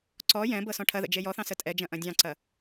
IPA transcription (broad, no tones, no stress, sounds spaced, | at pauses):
ǀ ɔ j ɛ̃ b ɤ s ɔ̃ ʈʰ ɐ ð ə̰ d͡ʒ e j ɔ θ ɑ̃ s ə tʼ ɛ d͡ʒ ɐ̃ ʔ ɐ̃ dʲ ɑ̃ ǀ ɐ